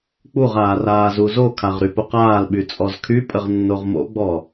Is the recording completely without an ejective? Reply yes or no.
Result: no